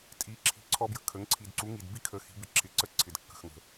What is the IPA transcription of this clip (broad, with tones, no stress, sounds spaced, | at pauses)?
tʼ i˩˥ ǁʰ i̤˧ ǀʰ ɔ˦˥ b j ə̤˧ kʰ ə˩˥ ŋ ǀʰ i˨˩ d ǀ u˩˥ ŋ i˨˩ d b i˦˥ kʰ ə˩˥ x i̤˩˥ b ɪ˨˩ ǁʰ ɪ˩˥ ǀ ə˦˥ ǀʰ ɪ˨˩ d kː ə̤˨˩ x ŋ ə̤˨˩